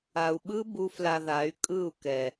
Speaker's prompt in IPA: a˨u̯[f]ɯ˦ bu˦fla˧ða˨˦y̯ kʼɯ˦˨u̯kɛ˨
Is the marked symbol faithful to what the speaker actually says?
no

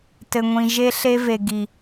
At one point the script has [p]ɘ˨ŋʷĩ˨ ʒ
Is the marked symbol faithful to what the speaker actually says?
no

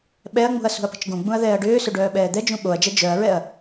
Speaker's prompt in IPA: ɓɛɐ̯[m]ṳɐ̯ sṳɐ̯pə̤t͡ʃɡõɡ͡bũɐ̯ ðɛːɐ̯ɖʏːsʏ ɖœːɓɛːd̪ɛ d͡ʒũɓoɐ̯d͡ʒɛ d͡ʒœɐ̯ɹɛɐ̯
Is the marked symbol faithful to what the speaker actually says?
no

